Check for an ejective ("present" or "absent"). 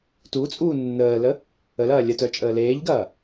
present